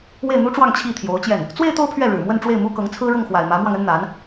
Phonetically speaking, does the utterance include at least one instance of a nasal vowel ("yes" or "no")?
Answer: no